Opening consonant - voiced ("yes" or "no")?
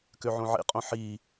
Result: no